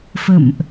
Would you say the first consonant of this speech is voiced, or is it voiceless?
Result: voiceless